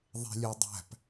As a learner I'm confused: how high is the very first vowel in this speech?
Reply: mid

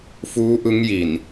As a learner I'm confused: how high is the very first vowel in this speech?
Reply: high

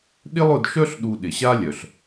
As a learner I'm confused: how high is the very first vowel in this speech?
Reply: high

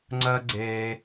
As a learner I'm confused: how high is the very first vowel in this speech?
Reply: mid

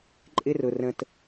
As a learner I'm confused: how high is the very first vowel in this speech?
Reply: high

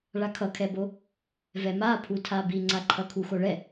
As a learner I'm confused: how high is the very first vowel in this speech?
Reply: low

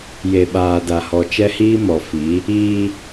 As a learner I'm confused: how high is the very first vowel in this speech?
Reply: mid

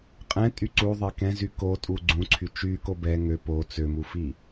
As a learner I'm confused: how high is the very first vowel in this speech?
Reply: mid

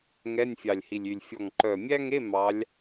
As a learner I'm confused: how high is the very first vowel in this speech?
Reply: mid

